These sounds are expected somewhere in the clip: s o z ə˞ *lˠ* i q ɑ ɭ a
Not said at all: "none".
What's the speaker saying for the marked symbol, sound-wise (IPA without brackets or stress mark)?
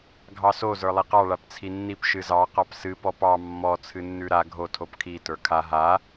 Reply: lˠ